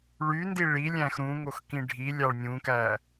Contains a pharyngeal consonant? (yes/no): no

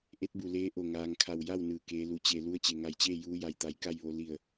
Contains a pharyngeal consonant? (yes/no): no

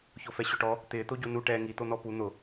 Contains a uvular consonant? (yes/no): no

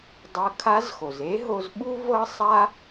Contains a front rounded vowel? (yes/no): no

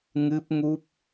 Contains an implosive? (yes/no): no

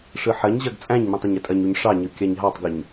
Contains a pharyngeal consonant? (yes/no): yes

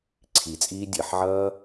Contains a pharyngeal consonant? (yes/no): yes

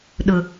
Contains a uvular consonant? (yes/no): no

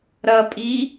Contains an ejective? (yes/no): yes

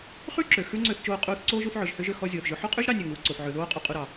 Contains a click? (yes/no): yes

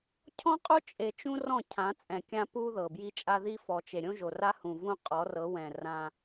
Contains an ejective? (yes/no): yes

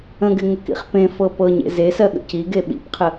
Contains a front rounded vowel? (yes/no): no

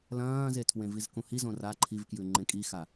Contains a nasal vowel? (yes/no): yes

